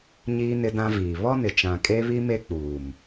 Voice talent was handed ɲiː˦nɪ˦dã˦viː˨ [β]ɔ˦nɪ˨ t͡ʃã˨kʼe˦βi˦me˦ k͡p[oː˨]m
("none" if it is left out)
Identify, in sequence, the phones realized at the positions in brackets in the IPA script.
β, uː˨

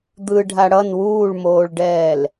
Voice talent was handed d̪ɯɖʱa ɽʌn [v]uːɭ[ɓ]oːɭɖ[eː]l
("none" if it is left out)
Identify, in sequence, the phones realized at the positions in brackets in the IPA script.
w, m, ɛː

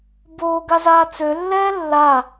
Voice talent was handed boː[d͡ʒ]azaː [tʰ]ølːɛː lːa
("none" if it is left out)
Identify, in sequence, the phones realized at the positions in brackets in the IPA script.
ɡ, t͡s

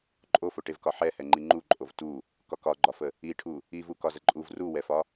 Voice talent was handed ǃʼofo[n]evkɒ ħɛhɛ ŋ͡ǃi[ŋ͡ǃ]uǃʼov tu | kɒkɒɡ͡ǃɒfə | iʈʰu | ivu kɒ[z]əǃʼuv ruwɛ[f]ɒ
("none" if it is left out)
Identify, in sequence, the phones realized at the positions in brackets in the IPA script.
ʈ, ŋ͡ǃ, z, f

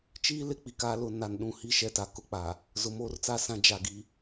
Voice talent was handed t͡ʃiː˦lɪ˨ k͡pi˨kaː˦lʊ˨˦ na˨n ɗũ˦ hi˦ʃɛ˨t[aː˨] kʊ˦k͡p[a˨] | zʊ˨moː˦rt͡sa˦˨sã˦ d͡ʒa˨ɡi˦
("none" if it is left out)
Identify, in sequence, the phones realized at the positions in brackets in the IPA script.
a˨, a˨

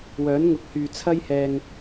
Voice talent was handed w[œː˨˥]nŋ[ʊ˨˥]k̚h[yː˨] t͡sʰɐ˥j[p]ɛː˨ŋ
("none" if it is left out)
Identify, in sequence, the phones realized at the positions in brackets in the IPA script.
œː˨˥, ʊ˨˥, yː˨, h

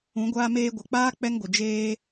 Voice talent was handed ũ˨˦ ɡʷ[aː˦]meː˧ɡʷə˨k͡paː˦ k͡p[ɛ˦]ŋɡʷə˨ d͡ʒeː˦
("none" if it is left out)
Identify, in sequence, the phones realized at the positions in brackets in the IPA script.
aː˧, ɛ˦

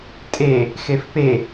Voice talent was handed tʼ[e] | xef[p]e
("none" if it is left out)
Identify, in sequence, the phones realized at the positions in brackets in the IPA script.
e, p

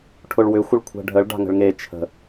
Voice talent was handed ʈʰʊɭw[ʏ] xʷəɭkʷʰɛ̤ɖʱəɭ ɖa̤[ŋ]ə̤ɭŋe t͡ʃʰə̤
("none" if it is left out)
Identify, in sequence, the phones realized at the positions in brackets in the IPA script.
ʏ, ŋ

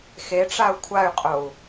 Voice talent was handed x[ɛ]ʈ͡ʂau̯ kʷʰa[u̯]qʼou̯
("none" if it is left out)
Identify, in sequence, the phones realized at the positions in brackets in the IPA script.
e, y̯

